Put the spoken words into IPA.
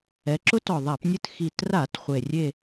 ɛ˩˧ ǁ ʊ˧˥ t ɔ˨˩ ðˤ a˧˩˧ p nʲ ɨ˦˨ t x i˨˩ t r a˧˩˧ t χʷ e˨˩ rʲ e˦˨

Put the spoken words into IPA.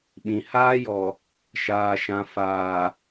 ɓ ĩ˨ h aː˦ j ɔ˨ | ʃ aː˨ ʃ ã˨ f aː˨

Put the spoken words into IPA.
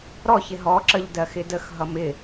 ɾ ɔ ç ɪ ɦ ɔ ǁ ə ʎ d ɜ x ɪ d ə x ɦ ʌ m ɪ

